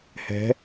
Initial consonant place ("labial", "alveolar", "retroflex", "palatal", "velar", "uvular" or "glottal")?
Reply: glottal